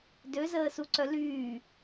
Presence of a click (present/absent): present